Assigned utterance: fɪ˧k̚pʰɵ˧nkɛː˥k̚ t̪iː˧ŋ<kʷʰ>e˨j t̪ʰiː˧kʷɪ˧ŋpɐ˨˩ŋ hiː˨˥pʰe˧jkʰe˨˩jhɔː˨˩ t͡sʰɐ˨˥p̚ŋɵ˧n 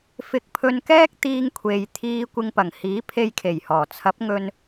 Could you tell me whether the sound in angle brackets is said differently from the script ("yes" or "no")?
no